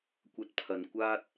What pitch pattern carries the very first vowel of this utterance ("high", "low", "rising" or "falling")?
high